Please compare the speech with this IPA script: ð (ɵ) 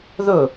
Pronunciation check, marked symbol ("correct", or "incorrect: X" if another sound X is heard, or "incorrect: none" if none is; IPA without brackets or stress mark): correct